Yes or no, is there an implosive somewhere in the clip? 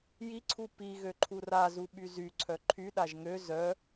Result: yes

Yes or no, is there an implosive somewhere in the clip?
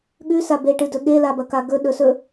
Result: yes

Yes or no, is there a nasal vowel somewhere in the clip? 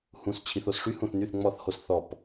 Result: yes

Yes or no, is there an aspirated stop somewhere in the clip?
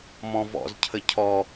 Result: yes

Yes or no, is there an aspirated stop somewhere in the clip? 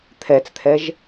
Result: yes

